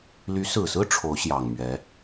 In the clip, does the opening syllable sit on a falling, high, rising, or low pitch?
rising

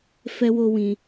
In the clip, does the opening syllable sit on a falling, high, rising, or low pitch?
high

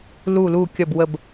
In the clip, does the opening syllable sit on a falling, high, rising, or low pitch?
falling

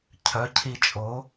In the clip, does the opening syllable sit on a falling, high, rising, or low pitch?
rising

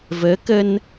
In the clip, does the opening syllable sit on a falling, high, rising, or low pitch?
rising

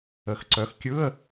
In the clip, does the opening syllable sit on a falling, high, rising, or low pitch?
rising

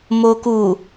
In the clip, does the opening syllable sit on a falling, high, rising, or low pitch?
low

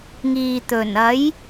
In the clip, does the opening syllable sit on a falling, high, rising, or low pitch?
low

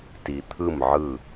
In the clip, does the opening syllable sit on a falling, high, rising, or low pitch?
low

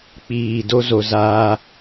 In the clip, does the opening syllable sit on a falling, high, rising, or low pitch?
low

